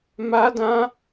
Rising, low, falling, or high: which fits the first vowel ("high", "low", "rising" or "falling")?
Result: high